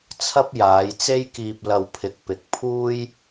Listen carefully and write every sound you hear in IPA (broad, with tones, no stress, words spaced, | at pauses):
t͡sʰɐ˥p̚ jaː˨˧jt͡se˥jkiː˧p̚ lɐ˧wpʰɪ˨˥k̚ pɪ˨k̚ pʰuː˥j